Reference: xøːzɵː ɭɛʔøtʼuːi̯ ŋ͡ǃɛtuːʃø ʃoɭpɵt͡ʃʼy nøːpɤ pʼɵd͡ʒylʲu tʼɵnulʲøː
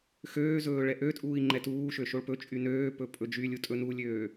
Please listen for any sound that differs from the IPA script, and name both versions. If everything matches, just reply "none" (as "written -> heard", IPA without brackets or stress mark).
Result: ɤ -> ɵ